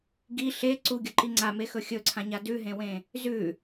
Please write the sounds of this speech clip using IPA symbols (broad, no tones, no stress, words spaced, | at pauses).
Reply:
ɡi ɬe ǀuɡʲɵǃi ŋ͡ǀamexɵ xʲɵǀʰãɲa dʉɦẽwẽ | zʉ